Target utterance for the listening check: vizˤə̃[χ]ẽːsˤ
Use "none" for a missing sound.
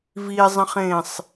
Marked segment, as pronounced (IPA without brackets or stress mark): χ